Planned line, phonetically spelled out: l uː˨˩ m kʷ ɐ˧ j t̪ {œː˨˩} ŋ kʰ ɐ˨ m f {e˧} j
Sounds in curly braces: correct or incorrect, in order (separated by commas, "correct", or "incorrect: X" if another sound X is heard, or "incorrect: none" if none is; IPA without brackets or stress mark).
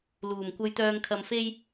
incorrect: œː˧, correct